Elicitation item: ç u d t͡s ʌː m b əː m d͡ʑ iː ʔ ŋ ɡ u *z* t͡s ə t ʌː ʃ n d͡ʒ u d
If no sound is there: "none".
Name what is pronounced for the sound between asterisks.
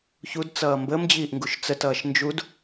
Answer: ʃ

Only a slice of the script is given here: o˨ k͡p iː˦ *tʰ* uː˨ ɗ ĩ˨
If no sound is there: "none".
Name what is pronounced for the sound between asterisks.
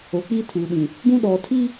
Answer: tʰ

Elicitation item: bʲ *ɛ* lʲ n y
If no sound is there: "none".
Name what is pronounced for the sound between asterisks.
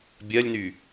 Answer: ɜ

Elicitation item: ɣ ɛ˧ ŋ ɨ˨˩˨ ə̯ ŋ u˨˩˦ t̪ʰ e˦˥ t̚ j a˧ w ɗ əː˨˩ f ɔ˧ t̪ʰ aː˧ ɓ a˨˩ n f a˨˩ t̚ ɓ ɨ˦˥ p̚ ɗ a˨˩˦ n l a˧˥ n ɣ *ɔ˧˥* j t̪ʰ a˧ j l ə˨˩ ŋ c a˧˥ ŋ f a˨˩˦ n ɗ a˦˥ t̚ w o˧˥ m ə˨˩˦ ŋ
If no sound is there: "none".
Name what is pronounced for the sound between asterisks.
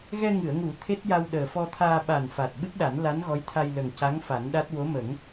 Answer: ɔ˧˥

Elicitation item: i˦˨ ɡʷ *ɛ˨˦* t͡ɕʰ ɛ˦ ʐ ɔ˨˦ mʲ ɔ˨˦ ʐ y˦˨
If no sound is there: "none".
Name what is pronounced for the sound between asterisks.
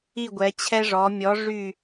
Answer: ɛ˨˦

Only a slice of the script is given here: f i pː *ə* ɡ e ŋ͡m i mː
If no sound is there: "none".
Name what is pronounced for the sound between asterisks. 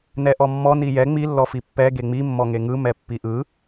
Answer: ɛ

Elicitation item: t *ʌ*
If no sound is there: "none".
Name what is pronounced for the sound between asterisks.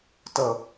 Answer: ʌ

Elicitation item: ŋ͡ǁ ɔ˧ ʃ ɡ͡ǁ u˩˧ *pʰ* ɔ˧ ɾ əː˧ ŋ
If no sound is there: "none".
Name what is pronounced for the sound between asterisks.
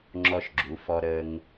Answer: f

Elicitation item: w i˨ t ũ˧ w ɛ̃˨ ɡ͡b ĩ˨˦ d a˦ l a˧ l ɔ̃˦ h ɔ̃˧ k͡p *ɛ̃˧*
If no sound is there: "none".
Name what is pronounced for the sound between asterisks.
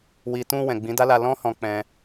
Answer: ɛ̃˧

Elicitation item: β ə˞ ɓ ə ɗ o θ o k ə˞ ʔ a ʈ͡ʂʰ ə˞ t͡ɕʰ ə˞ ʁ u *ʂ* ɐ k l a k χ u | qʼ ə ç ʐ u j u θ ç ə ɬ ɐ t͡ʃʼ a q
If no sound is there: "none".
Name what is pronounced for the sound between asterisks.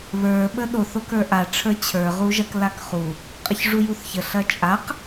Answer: ʒ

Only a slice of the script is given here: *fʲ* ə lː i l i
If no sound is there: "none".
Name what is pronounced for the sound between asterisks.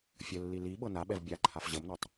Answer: fʲ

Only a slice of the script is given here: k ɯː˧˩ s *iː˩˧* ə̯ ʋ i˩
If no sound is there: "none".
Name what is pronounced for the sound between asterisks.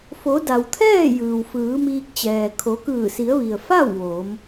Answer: i˩˧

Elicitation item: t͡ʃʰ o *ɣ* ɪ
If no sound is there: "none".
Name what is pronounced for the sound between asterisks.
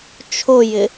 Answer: j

